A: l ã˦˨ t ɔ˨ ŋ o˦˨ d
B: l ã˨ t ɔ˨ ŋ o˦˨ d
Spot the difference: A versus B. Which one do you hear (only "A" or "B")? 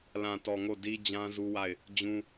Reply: B